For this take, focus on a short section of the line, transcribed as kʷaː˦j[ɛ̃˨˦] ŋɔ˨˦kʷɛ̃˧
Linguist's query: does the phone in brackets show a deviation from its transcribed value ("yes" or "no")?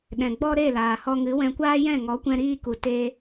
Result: yes